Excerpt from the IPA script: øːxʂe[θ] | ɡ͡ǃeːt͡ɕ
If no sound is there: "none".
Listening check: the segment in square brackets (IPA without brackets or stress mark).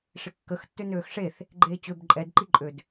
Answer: θ